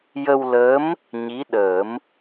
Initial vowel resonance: oral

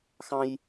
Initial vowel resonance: nasal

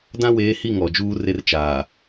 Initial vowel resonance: nasal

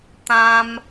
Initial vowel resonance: nasal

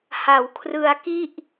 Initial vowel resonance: oral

